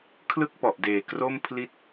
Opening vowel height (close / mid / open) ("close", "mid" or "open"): close